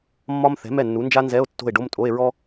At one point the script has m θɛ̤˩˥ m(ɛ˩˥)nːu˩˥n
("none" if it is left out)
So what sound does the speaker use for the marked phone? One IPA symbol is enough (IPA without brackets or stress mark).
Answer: ɛ˥˩